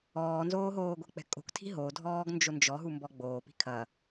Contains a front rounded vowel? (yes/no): no